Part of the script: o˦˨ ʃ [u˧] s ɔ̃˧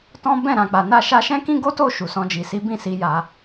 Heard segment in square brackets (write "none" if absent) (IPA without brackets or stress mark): u˨